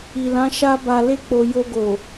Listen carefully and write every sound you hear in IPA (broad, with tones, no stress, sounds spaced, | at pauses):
i˨ l ã˨˦ ʃ a˦ b a˧ l e˦ k͡p o˧ j o˧ ɡ o˨